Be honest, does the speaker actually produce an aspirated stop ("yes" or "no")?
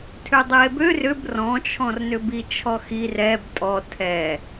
yes